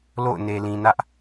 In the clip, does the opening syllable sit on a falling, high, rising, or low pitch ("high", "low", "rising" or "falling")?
falling